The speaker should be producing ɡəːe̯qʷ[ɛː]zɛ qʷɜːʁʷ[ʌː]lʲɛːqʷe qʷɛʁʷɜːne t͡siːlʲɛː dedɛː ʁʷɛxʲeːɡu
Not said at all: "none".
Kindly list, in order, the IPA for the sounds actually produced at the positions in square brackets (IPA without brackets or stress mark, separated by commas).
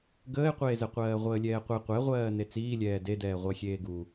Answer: eː, əː